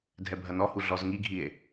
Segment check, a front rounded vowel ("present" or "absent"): absent